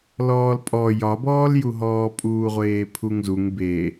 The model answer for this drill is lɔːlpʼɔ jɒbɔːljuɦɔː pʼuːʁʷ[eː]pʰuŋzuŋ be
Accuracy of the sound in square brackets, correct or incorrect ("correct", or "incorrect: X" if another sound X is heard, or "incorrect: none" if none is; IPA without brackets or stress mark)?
correct